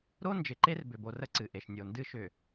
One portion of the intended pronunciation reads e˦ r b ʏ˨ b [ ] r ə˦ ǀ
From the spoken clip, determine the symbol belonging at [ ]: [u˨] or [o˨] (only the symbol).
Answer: o˨